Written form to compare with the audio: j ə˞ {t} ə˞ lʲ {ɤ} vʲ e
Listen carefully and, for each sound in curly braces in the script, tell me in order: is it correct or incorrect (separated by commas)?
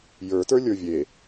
correct, incorrect